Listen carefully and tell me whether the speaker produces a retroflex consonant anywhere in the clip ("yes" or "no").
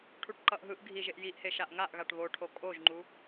yes